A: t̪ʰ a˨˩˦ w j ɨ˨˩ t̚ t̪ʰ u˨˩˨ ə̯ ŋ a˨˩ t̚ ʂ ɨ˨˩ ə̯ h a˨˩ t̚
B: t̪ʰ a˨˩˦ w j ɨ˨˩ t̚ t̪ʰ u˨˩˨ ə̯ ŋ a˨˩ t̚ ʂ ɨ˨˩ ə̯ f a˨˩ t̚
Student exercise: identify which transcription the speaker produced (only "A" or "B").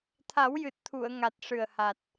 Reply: A